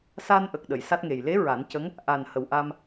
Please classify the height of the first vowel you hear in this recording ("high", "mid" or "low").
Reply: low